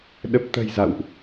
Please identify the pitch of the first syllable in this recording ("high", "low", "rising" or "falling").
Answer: low